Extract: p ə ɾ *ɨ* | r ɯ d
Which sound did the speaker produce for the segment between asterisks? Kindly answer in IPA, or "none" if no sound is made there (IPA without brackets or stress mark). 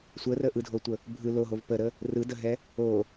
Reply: ə